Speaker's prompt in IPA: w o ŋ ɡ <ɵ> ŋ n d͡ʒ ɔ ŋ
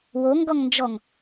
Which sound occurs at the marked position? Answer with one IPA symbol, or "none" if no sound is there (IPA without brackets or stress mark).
ɔ